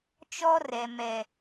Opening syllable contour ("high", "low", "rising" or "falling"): high